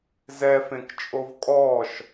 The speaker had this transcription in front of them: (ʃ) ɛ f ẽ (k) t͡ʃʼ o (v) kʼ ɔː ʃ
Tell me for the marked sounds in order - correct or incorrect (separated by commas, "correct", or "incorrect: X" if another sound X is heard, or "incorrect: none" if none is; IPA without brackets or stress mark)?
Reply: incorrect: z, correct, correct